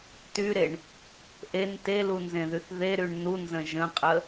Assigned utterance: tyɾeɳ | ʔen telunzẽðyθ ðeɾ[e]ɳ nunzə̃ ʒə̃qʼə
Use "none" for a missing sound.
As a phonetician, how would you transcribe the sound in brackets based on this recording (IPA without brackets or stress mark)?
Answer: y